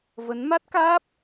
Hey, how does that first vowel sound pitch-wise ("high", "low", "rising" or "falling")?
rising